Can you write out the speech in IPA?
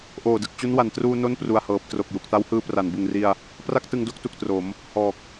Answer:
ʔ oː˨˩ d ɯ˨˩ k̚ t͡ɕ u˦˥ n w a˨˩ n t r uː˧ n o˥˩ n p r u˨˩ a̯ h ɤː˨˩ p̚ t r o˨˩ k̚ j u˨˩ k̚ t a˦˥ w h ɯː˧ p r a˩˦ n b ɯ˨˩ ŋ r i˧ a̯ | p r a˥˩ k̚ t ɯ˧ ŋ d o˦˥ k̚ t u˨˩ k̚ t r o˩˦ m | h ɔː˨˩ k̚

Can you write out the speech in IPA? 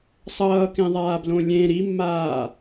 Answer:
sˤ ʌː k ẽ ðˤ aː b l õ lʲ ẽ ɾ i mː aː

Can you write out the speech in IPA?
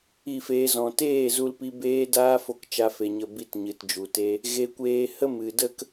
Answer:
i˦˨ f eː˧ z ɔ̃˨ t eː˦˨ z u˧ l p i˧ b eː˦ d aː˦ f o˦ k t͡ʃ a˦ f e˧ ɲ ə˦˨ b i˦˨ t ɲ ɨ˨ t d͡ʒ u˨ t e˦ | ɣ e˦ kʷ eː˦ h ə˦ m ɨ˨ d ə˦ k

